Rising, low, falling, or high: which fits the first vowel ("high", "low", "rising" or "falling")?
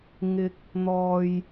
rising